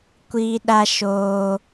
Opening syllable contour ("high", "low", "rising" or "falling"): high